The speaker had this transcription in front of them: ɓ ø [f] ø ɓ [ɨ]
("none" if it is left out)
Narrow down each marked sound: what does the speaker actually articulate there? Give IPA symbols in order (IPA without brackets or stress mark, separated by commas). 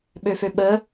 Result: f, ə